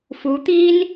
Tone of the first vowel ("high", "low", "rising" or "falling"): rising